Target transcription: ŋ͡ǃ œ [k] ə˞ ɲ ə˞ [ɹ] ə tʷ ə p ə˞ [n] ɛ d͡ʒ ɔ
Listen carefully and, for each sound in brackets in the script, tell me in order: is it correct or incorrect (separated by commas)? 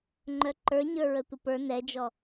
incorrect, correct, correct